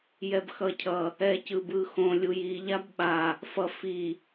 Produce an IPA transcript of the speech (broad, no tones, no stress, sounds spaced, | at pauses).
j ɛ b x ʌ cʰ ʌ | ɛ c ɯ b ɯ x õ lʲ u j i ʎ a b ɓ a | f ʌ f i